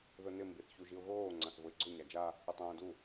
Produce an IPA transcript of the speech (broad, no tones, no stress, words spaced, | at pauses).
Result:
ðʊnɪ mbiθçuʒiʊ̯ɣoː ŋ͡ǀãθvʊɪ̯ɡ͡ǀʊ ɲad͡ʒa | ʊtˤõːdu